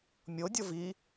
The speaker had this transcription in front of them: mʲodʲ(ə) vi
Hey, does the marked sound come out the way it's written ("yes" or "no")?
no